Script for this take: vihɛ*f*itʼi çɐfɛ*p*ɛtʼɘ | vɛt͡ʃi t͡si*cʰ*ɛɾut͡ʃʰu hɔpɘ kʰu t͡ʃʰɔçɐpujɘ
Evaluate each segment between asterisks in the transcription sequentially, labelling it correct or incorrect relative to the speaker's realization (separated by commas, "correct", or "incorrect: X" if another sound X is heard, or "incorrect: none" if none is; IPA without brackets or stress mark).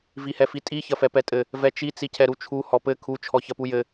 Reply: correct, correct, correct